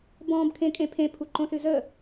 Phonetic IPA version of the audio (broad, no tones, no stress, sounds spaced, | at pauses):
b ɔ̃ː b kʰ ẽ kʼ ẽ pʰ ẽ pʰ u ǃ õ s ɨ z ə